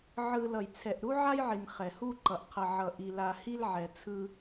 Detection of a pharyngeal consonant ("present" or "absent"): present